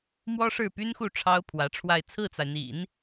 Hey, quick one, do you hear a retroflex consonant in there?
yes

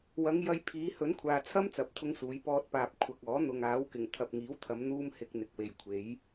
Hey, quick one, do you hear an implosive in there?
no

